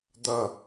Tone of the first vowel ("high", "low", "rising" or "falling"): low